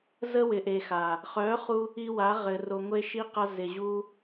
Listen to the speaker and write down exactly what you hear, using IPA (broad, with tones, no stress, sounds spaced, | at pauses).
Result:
z ə˧ w ɪ˨ ʔ e˨ x a˨ | χ œ˨˦ χ u˧ | i˧ w a˨˦ ʁ ɘ˨ r o˨ ŋʷ e˧ ʃ i˧ q a˧ z ɪ˨ ʑ u˧